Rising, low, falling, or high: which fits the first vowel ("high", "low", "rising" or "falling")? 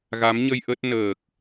rising